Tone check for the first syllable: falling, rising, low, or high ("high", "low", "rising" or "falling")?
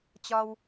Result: high